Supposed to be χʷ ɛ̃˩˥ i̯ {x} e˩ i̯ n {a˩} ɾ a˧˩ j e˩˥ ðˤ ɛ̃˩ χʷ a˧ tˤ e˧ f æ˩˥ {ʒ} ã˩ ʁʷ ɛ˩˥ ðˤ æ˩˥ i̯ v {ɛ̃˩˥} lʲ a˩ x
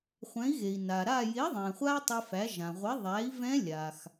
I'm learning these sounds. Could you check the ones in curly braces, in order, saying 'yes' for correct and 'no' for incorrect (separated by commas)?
no, yes, yes, no